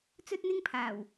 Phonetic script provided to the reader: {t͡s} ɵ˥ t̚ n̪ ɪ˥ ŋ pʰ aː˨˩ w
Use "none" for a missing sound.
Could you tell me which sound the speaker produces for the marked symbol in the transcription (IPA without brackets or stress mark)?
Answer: t͡s